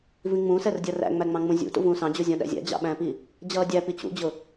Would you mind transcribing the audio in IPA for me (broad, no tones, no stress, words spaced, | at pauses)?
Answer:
vĩŋ͡mũsɛrdʲʌ ræ̰ŋ͡mæŋ͡mɑ̃ŋ͡mũ zʲṵ tṵvũːsɑ̃d͡ʑu zʲɔ̃ɗæ̰zʲæ̰ d͡ʑɑ̰ɓæ̃pi | d͡ʑʌːdʲæpi t͡ɕṵd͡ʑʊ